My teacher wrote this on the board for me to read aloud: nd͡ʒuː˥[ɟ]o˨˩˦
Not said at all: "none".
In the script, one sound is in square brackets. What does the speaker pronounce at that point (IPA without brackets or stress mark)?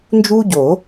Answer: ɟ